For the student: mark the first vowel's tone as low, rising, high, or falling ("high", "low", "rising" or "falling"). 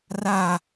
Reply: low